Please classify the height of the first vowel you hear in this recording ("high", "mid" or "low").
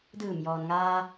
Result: high